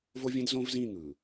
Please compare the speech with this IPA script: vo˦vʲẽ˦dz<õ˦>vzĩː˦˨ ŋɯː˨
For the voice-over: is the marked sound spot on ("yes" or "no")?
yes